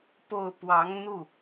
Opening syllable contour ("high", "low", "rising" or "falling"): falling